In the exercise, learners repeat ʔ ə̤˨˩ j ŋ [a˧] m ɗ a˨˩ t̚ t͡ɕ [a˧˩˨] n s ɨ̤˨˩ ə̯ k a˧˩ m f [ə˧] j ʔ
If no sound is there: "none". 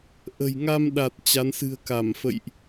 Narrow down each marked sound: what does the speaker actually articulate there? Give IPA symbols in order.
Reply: a˧, a˨˦, ə̰˧˨

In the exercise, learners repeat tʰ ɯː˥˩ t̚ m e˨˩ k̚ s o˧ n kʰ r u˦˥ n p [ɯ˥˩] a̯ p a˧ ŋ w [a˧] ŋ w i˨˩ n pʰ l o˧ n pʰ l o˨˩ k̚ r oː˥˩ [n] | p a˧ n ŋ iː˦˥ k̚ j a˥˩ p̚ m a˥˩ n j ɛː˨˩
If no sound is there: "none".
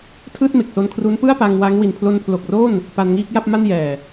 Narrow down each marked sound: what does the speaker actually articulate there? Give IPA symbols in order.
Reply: ɯ˥˩, a˦˥, n

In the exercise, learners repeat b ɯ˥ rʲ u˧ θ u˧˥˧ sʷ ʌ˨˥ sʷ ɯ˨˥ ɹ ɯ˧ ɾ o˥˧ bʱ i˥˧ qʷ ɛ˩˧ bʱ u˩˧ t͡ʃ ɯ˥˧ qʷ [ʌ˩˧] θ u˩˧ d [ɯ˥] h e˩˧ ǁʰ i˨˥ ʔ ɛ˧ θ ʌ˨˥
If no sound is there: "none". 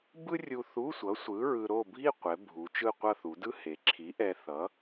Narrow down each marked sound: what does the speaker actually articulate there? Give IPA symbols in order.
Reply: ʌ˥˧, ɯ˥

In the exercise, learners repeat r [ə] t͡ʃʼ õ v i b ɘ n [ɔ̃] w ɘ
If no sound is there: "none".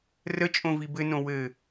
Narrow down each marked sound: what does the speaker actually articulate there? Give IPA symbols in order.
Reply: ə, õ

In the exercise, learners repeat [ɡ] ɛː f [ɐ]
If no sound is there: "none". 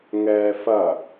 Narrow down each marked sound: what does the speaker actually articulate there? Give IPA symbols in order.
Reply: ŋ, ɐ

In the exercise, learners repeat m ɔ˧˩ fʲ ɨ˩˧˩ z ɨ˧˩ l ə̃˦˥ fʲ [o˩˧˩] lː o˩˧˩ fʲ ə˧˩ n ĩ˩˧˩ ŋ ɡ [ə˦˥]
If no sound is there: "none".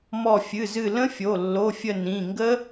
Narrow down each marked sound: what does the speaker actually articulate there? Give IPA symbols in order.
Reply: o˩˧˩, ə˦˥

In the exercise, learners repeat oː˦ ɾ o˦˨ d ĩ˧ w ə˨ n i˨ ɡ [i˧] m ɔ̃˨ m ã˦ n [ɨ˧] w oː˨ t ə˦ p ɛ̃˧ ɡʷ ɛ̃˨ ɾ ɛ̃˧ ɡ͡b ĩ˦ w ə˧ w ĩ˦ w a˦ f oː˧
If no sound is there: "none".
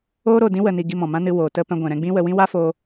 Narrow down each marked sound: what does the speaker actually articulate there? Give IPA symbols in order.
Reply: i˧, ɨ˧

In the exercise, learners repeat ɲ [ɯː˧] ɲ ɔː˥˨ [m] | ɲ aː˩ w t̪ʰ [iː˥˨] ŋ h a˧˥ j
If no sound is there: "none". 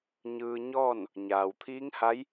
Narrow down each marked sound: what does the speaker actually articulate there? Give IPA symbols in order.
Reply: ɯː˧, n, iː˧˥

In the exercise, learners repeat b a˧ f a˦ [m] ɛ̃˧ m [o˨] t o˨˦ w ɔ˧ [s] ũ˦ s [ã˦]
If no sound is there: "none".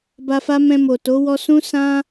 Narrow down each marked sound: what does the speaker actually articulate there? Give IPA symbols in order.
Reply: m, o˨, s, ã˦

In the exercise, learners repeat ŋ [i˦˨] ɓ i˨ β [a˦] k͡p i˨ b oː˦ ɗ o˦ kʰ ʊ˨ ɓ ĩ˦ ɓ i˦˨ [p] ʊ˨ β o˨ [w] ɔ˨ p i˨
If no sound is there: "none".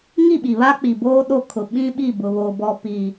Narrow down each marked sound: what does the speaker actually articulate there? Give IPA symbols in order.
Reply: i˦˨, a˦, b, b

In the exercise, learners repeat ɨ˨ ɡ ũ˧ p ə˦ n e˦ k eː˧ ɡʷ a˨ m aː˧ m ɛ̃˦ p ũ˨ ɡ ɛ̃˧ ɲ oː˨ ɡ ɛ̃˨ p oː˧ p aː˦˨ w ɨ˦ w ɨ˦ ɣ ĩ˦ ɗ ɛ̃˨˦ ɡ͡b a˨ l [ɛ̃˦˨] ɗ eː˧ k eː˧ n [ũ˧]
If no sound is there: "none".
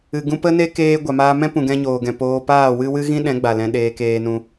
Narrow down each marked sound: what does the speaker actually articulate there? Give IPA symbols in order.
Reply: ɛ̃˧, ũ˧

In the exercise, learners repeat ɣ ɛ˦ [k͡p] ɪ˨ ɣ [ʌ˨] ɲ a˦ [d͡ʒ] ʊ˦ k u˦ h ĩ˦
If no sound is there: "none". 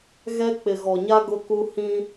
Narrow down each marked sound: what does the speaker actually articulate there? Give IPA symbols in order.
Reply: k͡p, ɔ˨, ɡ

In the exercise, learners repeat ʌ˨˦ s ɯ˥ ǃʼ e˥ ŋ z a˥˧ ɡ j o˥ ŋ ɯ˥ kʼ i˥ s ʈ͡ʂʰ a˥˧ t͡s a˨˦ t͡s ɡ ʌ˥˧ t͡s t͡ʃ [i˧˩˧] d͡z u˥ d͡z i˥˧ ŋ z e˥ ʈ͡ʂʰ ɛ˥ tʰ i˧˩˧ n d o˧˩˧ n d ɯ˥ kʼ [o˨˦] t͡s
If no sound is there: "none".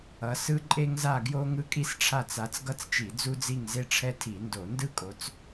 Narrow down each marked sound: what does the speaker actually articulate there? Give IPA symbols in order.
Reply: i˧˩˧, o˨˦

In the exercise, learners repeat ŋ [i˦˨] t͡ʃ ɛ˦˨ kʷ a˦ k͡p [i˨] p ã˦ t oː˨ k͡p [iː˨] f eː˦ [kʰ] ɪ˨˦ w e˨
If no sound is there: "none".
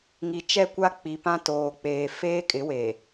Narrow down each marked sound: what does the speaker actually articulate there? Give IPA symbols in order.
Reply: i˨, i˨, eː˨, kʼ

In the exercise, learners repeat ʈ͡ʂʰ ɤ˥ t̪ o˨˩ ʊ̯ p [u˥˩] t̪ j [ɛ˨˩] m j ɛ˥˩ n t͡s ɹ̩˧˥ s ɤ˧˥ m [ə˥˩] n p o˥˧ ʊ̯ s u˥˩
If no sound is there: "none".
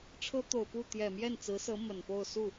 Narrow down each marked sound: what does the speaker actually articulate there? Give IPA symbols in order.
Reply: u˥˩, ɛ˨˩, ə˨˩

